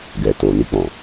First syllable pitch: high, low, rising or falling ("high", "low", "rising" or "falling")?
low